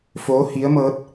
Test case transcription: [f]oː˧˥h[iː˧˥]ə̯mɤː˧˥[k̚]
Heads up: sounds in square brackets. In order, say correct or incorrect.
correct, incorrect, incorrect

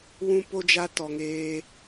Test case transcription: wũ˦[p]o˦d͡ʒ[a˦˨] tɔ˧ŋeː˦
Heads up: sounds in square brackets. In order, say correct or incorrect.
correct, incorrect

